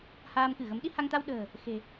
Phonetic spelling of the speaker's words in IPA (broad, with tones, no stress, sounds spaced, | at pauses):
h aː˧ m k ɨ˧˩ ɣ ə˨˦ m ɗ i˧ h a˧ ŋ t̪ a˧ w ɗ ə̤ː˨˩ | x e̤˨˩